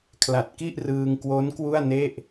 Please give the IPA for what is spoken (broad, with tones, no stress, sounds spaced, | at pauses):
kʰ l a˨˩ t̚ k i˥˩ ʔ r ɯː˧ ŋ k w o˦˥ n k w u˥˩ a̯ n e˥˩ ʔ